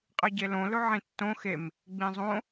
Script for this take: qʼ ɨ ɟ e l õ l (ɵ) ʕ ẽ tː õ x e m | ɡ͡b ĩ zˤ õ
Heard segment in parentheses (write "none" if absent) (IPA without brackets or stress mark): ɵ